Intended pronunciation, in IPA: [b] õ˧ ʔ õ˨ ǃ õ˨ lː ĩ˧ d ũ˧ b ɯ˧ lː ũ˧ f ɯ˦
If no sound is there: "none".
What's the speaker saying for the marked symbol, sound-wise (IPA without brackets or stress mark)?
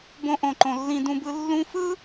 b